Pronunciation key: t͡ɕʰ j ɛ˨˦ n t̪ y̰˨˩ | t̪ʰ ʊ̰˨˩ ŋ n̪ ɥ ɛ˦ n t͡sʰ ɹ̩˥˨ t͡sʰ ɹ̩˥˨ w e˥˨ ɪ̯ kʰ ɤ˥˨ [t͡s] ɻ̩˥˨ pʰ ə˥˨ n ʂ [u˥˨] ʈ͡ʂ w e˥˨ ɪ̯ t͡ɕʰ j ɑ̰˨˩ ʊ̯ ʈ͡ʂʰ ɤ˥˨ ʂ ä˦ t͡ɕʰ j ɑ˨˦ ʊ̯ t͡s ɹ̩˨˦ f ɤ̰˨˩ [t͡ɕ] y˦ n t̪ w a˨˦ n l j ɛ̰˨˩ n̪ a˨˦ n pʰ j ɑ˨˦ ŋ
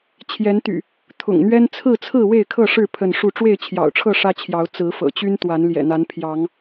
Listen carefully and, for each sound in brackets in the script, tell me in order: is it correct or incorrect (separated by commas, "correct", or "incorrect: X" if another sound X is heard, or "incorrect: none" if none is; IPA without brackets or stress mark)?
incorrect: ʂ, correct, correct